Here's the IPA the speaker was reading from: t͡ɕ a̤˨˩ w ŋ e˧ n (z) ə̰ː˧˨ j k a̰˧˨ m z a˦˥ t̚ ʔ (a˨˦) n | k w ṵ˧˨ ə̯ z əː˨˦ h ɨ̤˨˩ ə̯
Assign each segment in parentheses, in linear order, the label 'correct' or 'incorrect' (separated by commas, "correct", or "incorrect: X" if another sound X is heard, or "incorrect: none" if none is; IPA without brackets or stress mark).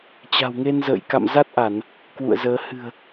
correct, incorrect: a˧˩˨